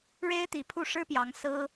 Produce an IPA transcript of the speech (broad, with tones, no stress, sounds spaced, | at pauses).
ɻ e˥ ɪ̯ t̪ i˧˥ pʰ u˥˩ ʂ ɻ̩˥ p j ɑ˧˥ ŋ s ɹ̩˥